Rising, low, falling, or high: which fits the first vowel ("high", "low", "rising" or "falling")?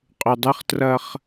low